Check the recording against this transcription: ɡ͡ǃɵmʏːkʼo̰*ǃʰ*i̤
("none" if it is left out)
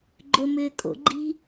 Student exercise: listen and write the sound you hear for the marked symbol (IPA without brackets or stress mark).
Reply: ɡ͡ǃ